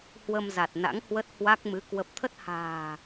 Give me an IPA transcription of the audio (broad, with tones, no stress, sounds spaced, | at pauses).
h w ə˧ m z a˨˩ t̚ n a̰˧˥ ŋ h w ə˦˥ t̚ h w a˦˥ k̚ m ɨ˨˦ k w ə˨˩ p̚ t̪ʰ ə˦˥ t̚ h a̤ː˨˩